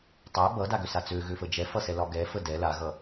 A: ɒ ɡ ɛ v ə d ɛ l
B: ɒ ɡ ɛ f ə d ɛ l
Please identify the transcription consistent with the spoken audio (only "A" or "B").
B